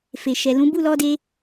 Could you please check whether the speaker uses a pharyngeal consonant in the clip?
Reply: no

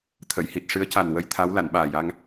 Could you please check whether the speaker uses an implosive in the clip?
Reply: yes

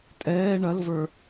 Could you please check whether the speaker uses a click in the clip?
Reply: no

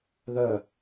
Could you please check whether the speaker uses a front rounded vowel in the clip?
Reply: yes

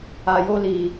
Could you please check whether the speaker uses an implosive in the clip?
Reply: no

